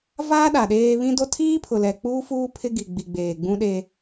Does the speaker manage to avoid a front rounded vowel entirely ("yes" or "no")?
yes